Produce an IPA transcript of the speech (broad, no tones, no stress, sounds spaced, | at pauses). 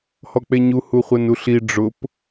h ɔ k͡p e ɲ u h u χʷ ɛ n u ɬ i ɖ͡ʐ ʊ p